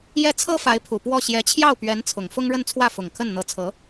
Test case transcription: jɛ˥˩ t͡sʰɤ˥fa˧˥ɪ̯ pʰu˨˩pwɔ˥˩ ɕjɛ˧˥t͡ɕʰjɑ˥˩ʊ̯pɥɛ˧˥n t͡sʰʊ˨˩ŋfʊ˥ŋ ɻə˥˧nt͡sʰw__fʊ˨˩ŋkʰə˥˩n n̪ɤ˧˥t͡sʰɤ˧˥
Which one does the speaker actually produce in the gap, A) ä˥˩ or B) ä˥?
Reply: A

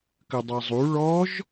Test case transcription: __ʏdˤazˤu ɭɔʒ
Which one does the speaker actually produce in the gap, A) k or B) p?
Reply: A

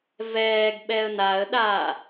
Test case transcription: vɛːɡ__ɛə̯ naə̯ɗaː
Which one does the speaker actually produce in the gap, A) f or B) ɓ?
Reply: B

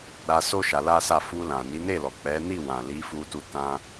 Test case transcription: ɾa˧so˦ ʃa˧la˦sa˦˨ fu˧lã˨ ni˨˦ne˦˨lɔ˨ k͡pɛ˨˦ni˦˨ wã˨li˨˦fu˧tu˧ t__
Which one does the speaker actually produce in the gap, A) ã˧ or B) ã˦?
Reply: B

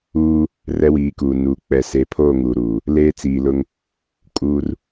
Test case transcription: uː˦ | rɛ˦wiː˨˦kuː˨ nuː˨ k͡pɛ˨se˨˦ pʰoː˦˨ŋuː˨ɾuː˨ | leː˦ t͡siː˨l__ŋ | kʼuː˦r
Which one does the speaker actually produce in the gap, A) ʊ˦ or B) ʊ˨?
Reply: A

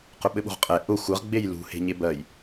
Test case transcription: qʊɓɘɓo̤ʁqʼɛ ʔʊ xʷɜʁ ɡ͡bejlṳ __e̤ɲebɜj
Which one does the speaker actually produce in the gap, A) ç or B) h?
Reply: B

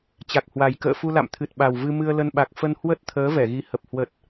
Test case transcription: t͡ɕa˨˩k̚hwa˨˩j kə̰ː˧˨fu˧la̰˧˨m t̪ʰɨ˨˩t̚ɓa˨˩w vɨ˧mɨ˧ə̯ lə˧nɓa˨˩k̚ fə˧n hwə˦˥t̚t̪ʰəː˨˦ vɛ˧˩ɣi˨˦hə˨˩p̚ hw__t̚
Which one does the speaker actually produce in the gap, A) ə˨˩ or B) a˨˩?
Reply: A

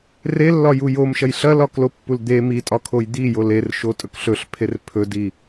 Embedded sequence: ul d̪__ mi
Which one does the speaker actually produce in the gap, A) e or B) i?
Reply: A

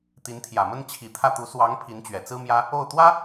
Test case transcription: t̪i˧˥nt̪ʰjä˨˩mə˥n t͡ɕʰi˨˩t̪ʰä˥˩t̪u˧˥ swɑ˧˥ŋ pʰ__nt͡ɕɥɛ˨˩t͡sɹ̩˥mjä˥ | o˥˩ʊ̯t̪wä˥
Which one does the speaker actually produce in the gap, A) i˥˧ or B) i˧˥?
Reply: B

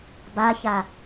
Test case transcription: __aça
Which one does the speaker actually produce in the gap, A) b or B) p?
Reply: A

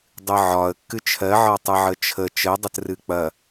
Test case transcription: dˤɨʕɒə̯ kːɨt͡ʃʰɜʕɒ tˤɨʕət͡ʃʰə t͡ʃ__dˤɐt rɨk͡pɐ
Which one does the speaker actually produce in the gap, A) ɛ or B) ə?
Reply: B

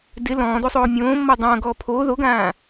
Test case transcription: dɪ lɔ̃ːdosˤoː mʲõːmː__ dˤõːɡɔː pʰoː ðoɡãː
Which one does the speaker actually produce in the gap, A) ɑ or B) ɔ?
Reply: B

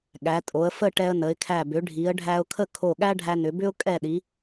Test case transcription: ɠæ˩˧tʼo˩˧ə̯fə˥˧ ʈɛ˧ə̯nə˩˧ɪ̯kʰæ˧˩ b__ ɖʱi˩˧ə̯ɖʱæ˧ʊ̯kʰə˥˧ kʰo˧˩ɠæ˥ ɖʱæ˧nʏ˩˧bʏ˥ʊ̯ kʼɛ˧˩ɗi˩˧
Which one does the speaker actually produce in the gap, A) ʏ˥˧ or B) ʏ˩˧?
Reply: B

